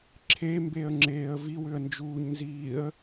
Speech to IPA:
ǁʰ e m b e ə̯ ŋ͡ǁ eː ə̯ v i w ʏ ə̯ n d͡ʒ uː ɲ n z iː ə̯

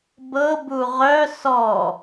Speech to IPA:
b ɤ b u ʁ œ s ɔ

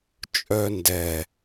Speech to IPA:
t͡ʃʼ œ n d ɛ

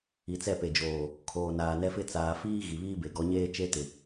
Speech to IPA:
i˨ t͡s ɛ˦˨ p e˨ d͡ʒ oː˨ | kʰ oː˨ n aː˨ n ɛ˦ f ɪ˦ t͡s aː˨ f iː˦ ɣ i˨ β iː˦ b e˨ ɡ ɔ˨˦ ɲ eː˦ t͡ʃ e˦ t ɪ˨

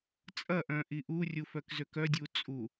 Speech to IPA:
t͡sʼ ɐ ʔ œ̃ ʔ i ʔ u rʲ u f œ k z ø k œ dʲ u t͡sʼ u

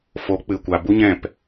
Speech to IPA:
f o˨˦ k͡p ɨ˨ kʷ a˨ b u˦ ɲ ɛ̃˦˨ p

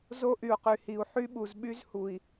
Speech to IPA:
z o˦ ʔ y˨ u̯ q y˨ h i˨ u̯ ħ y˦ ɓ u˨ z ɓ y˦ z h u˨ i̯

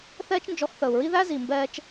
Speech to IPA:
θ ɛː˦ t͡ʃ n d͡ʒ ɔ˧ x θ əː˨ u̯ ɹ i˦ ð æ˦ z i˨ m b ɛː˧ t͡ʃ

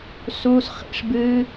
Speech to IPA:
s uː˦ s χ ḭ˧ ʂ b ɨ˦

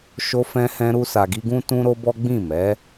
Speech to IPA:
ʃ o˧ f ɛ̃˧ h ɛ̃˧ ɾ u˧ s a˨ ɡ i˧ ɡ ũ˦ t ũ˦ ɾ o˦ b ɔ˦ ɡ͡b ĩ˦˨ m ɛ˨˦

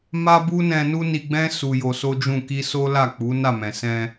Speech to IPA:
m a˦ b u˦ n ɛ̃˧ n u˦ n i˧ ɡ͡b ɛ̃˦ s u˧ j o˧ s o˦ d͡ʒ ũ˦˨ k i˧ s o˦ l a˦˨ k͡p u˨˦ n a˦˨ m ɛ̃˨ s ɛ̃˧

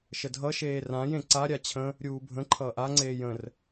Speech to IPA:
ʃ ə dʱ ʌ ʃ eː r ã j ẽ ǀ a ɾʲ a t͡ɕʰ ə̃ | ɾʲ uː bʱ ə̃ ǃʰ ʌː ʔ a ŋ͡ǀ eː j ə̃ r

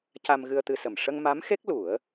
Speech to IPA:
c a˧ m ɣ ɨ˧ ə̯ t̪ ɨ˧ s ə˨˩ m ʂ ə˧ ŋ m a˧˥ m x e˦˥ k̚ l u˨˩˦ ə̯

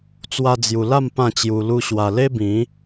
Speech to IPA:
t͡s w a˧ d͡z j u˨˩ l a˥˧ m p ã˥˧ t͡ɕ j u˧ l u˦ ɕ w a˧ l e˦ b ĩ˨˦

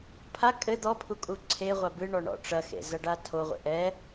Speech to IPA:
pʰ a kʼ ɘ d̪ ɔ pʰ u kʼ u ǀʰ e ʁʷ a b ɨ ɳ ɔ ɳ ɔ̰ ʈ͡ʂ ɐ x ḛ z ɐ ɖ a tʰ o ʁʷ ḛ ʔ ɛ

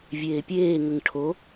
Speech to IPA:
vʲ eː pʲ eː ŋ ə ŋ ʈʰ o

